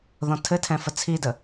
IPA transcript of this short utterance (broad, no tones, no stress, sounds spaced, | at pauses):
ð ɔ̃ tʰ ɘ tʰ ɛ̃ f ə t͡sʰ i d ə